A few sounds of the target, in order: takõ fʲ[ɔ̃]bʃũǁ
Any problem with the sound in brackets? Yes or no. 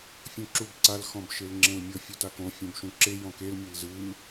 yes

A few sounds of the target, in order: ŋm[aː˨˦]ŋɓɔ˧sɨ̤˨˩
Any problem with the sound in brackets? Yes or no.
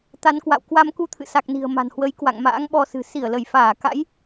yes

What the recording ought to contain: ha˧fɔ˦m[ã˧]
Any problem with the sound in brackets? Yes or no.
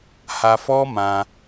no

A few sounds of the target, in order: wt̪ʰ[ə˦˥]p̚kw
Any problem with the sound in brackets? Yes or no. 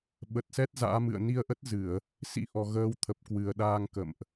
yes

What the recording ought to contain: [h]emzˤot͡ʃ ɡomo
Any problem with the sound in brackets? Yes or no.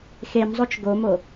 yes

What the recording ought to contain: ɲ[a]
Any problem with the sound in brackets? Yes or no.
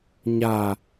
no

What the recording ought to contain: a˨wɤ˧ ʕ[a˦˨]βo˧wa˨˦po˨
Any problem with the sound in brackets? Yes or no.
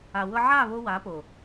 no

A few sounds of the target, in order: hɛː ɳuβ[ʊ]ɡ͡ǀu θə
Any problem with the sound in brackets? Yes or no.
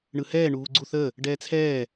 yes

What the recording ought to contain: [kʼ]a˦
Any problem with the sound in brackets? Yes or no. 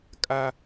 no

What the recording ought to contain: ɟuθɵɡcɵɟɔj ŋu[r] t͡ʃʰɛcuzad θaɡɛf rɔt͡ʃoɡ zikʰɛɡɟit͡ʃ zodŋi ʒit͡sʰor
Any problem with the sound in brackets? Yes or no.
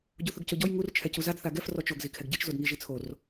no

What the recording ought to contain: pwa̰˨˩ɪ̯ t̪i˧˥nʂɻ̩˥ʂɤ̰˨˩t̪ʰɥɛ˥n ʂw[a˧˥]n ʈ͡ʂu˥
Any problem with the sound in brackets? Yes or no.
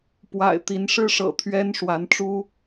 no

